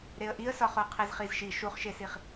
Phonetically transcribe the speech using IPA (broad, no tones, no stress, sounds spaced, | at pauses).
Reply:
ɾ e ə̯ ʔ i ə̯ s ɒ χ o qʰ e z χ i z ʃ i ʃ u χ ʃ e s i χ